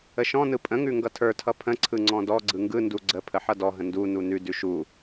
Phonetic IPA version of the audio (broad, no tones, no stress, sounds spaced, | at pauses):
ə ʃ ɔ̃ n ɯ pʼ ə̃ ŋ ʉ ŋ ɡ ʌ tʰ ə˞ tʰ ʌ pʰ ə̃ ǀʰ ɯ ŋ͡ǀ ɔ̃ d ɔ ɡ͡ǀ ɯ ŋ ɡ ɯ n d u ɡ͡ǀ ə pʰ ə ħ ʌ d ɔ ɦ ə̃ n d u n u n ʉ d ʉ ʃ u